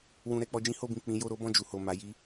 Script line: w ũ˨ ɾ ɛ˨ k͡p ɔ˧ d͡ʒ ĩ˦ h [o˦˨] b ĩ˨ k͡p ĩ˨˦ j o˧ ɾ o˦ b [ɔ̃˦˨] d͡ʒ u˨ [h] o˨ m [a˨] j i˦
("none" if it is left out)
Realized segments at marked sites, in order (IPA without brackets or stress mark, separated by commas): o˦˨, ɔ̃˦˨, h, a˨˦